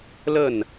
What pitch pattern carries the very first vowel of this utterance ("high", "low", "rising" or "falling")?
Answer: falling